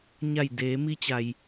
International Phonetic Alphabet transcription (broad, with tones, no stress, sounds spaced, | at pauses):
ɲ a˧˩ j d eː˩˧ m i˧ t͡ɕ a˩ j